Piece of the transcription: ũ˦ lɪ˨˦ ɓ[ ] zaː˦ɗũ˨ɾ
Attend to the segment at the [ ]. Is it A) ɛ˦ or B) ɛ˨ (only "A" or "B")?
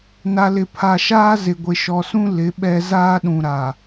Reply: A